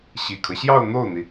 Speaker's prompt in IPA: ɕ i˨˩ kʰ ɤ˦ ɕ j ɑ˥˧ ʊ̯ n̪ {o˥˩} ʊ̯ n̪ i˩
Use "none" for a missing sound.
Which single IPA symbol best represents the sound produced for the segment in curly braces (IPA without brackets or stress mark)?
o˥˩